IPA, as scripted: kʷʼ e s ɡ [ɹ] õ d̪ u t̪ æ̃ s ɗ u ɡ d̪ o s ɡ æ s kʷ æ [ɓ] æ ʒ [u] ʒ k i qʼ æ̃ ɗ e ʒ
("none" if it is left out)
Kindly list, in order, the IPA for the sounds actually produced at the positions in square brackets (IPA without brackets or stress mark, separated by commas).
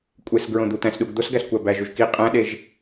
ɹ, b, u